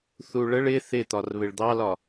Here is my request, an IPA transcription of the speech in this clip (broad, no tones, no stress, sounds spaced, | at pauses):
θ u ɭ ə ɭ ɪ θ ɪ t̪ ɒ r β ɪ ɭ d̪ ɑ l ɒ